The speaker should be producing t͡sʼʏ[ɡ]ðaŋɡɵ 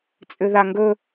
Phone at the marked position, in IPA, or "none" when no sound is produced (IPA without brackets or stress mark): none